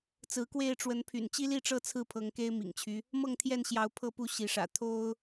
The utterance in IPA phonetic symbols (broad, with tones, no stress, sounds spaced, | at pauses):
t͡s ɹ̩˨˦ k w e˥˨ ɪ̯ ʈ͡ʂ w ə˨˦ n pʰ y̰˨˩ n t͡ɕ i˦ l i˥˨ ʈ͡ʂ ɤ˥˨ t͡sʰ ɹ̩˥˨ pʰ ɤ˨˦ ŋ k e˦ ɪ̯ m ḭ˨˩ ŋ t͡ɕʰ y˦ | m ɤ˥˨ ŋ t̪ʰ j ɛ˥˨ n ɕ j ɑ˨˦ ʊ̯ pʰ ɤ˥˨ p u˥˨ ɕ i˨˦ ʂ ä̰˨˩ t̪ʰ o˦ ʊ̯